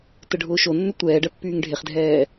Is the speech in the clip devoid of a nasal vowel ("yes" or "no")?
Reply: yes